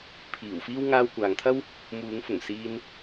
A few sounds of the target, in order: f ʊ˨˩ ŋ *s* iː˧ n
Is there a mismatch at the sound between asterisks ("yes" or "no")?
no